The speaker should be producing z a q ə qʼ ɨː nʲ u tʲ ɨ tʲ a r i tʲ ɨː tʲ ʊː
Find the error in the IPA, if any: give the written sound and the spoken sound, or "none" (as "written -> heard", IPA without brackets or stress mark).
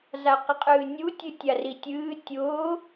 none